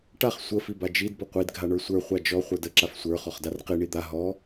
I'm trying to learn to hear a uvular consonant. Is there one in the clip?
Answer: yes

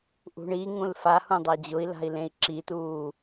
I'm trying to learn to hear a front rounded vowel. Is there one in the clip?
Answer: no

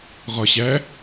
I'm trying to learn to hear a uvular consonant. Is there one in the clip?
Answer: yes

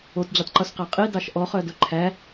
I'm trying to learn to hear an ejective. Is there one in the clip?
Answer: yes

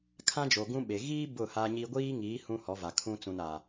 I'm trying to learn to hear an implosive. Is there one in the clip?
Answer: yes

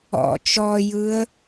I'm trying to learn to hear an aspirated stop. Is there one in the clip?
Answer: no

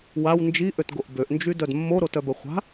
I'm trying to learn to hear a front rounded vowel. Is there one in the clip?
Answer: yes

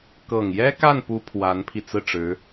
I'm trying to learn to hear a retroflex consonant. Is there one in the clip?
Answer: yes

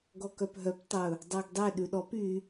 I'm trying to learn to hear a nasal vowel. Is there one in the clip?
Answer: no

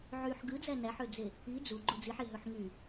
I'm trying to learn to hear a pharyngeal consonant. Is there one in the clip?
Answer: yes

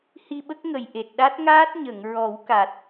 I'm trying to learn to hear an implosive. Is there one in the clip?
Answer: yes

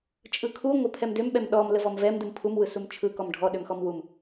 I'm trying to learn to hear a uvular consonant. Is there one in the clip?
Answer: no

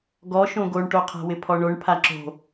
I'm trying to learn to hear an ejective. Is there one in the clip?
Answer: no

